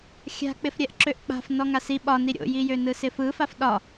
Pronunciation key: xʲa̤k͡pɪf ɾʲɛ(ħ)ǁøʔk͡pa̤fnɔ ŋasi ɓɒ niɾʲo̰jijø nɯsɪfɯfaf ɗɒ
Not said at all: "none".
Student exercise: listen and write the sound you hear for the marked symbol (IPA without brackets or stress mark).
ʔ